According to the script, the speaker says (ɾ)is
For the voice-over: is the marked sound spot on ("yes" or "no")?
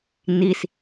no